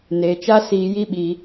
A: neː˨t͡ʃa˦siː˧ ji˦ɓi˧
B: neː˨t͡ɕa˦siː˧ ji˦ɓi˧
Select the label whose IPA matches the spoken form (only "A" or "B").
A